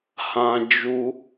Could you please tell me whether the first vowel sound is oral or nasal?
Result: nasal